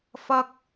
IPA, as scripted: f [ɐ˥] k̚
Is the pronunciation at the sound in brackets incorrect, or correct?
incorrect